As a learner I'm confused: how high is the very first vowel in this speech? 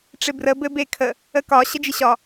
high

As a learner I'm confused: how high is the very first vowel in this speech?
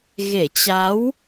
mid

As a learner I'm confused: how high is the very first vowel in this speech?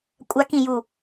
low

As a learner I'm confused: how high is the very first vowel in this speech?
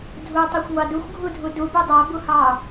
high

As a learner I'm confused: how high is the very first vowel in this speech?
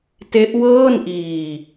mid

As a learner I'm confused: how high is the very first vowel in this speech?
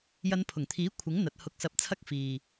low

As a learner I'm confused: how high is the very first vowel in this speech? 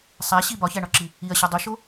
low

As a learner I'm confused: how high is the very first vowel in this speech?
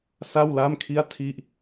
low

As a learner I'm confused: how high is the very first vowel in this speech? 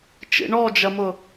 high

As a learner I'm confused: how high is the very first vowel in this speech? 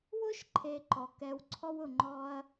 high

